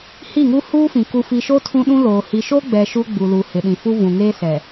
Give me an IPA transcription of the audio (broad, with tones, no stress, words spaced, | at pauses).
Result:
hi˦˨ŋu˦ huː˦fĩ˨ ku˨fi˨ʃo˦ tʰũ˦ɗũ˦loː˨ hi˨ʃo˦ɡ͡bɛ˨ ʃu˦ɡ͡bu˨lu˨ hɪ˨ɗĩ˨fu˦ vũ˨ŋeː˦sɛ˨